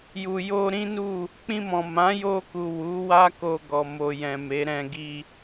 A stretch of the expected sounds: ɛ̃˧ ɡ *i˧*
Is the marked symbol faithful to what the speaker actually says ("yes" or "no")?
yes